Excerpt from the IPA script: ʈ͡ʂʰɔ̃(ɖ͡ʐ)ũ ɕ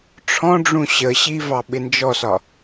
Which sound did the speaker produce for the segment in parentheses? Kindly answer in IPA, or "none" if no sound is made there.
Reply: ɖ͡ʐ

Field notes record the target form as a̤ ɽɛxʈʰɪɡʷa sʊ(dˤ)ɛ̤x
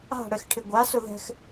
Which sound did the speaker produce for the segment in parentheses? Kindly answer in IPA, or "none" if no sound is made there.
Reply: ð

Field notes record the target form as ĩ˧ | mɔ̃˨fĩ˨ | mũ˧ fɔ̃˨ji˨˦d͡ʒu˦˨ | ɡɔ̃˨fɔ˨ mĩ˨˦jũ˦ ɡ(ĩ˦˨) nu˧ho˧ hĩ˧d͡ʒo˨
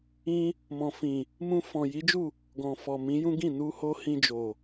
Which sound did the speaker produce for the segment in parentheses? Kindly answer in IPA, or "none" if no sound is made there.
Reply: ĩ˦˨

